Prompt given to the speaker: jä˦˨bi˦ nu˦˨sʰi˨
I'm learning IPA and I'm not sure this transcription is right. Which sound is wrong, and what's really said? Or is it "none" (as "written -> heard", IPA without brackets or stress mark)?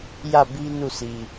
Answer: none